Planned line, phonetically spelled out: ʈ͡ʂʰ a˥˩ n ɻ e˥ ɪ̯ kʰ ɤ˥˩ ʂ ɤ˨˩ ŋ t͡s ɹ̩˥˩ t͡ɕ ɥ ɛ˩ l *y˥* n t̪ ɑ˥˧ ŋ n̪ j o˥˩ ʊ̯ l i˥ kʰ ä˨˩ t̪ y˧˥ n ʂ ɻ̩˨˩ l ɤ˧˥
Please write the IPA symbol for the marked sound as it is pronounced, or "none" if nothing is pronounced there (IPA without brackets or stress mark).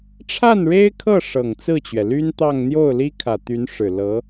y˥